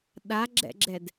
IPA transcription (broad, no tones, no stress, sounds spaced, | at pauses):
ɗ a ɡ͡ǁ ɛ̰ ɡ͡ǁ ɛ d